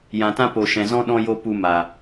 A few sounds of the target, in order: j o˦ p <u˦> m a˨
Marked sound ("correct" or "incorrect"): incorrect